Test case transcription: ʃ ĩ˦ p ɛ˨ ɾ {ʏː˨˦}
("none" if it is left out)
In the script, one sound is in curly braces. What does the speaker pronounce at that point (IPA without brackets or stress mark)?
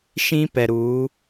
uː˨˦